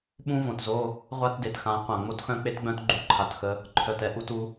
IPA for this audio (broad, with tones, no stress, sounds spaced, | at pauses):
ɓ ũ˦ v õ˨ t z o˦ | ʁʷ a˦ t d e˨ t x ã˨˦ qʷ ã˨ ŋ͡m o˦ t x œ̃˦ k͡p e˦ t ɡ͡b œ̃˦ t ɡ͡ǃ u˦˨ ǃʰ a˨ t x ə˦ | ǃʰ œ˨ t ɛ˦ ʔ u˦˨ t u˦